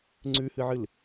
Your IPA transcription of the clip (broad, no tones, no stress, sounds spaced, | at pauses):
ŋ͡ǀ ʉ h ɨ ʕ ɨ l